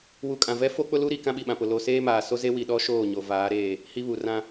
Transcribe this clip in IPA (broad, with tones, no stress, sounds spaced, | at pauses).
w u˨ kʼ ã˨ v ɛ˦ f o˦ k͡p ʊ˦ l u˦ ɾ i˨ k ã˦ ɓ i˨ ɓ ã˨ p ʊ˨ l oː˨ s eː˦ m aː˨ s o˦ z e˦ w i˨ ɗ ɔ˦ ʃ oː˦˨ ɲ o˨ v aː˨˦ ɾ eː˦˨ | h i˦ β u˨ r ã˦